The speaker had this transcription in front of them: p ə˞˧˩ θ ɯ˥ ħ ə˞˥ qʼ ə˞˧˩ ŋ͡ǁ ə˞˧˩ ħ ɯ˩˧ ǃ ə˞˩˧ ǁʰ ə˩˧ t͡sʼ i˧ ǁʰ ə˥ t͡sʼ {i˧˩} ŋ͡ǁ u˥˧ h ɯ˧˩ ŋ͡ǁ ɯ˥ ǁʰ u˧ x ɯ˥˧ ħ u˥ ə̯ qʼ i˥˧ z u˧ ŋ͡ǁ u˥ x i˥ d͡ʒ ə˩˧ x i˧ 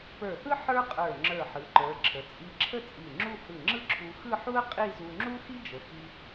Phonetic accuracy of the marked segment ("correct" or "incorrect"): correct